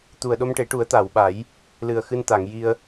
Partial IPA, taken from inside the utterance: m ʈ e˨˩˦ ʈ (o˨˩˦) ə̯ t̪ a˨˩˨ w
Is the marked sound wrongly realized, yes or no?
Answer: yes